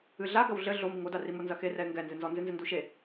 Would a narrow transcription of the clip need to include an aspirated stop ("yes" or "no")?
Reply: no